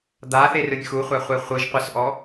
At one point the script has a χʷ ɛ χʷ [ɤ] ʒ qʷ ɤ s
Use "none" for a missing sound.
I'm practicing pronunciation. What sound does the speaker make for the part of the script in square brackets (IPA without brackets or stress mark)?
ɯ